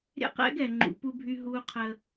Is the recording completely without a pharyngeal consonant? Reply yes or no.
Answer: yes